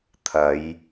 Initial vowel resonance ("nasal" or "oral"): oral